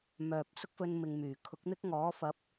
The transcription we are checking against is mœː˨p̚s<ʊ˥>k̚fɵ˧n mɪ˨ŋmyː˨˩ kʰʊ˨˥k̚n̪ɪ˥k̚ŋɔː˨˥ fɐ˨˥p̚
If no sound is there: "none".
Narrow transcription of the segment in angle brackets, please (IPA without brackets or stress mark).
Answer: ʊ˥